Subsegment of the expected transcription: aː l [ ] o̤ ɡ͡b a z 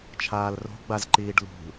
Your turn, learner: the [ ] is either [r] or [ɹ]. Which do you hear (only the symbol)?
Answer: r